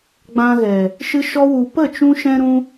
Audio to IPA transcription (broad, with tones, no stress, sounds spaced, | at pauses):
ɡ͡b ã˧ ɣ ɛ˨ | ʃ ɨ˧ ʃ ɔ˧ w u˨ p ə˦˨ t͡ʃ ũ˧ ʃ ɛ̃˧ ɾ ũ˧